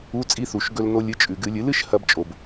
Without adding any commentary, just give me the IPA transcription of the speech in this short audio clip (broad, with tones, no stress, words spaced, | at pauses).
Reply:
u˧˥˧t͡sʼi˧˥˧θu˩ʃ ɡɵ˧lno˧lʲɨ˩˥ t͡ʃʼʉ˩ ɡɨ˧˩˧lʲɨ˩˥lɨ˩˥ʃ hɐ˧bt͡ʃʼo˩b